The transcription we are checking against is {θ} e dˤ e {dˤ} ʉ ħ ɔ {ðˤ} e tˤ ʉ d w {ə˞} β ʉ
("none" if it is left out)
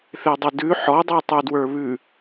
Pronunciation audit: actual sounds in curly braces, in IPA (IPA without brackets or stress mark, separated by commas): θ, d, dˤ, ə˞